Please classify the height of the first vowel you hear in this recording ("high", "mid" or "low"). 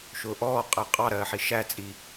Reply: high